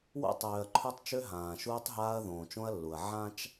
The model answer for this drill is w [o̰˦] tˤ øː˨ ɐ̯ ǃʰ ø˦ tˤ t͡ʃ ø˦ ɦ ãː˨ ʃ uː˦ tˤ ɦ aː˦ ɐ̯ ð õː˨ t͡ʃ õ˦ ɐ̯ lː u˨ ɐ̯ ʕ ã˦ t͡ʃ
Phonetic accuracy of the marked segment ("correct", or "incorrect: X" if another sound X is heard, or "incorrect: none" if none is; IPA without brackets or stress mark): correct